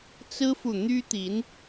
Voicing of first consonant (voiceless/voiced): voiceless